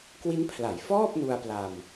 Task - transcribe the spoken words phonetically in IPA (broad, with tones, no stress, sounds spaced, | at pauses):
k w i˦˥ n pʰ l a˩˦ j f ɔː˥˩ p̚ n u˧ a̯ p l a˧ m